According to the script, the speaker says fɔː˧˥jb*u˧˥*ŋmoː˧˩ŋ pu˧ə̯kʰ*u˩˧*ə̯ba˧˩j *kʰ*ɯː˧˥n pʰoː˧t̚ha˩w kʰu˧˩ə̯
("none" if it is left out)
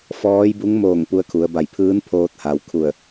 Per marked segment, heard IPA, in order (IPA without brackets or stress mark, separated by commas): u˧˥, u˩˧, pʰ